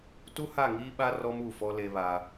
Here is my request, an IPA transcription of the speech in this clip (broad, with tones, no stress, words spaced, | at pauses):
tu˦ha˦˨ŋiː˦ɓa˦ rɔ˦mu˦˨fɔ˦ le˦βa˦